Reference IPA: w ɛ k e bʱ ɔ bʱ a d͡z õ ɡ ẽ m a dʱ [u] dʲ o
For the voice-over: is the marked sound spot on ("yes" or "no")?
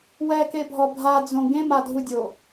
yes